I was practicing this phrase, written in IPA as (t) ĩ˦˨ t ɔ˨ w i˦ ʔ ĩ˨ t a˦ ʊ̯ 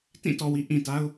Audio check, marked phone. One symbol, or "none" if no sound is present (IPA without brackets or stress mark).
t